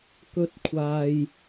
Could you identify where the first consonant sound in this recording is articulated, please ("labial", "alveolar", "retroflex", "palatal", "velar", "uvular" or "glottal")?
velar